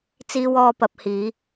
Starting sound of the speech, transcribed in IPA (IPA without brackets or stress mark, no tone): t͡s